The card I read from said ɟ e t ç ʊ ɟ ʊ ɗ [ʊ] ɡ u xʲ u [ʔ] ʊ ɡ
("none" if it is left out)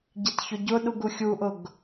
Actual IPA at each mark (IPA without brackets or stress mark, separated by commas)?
u, ʔ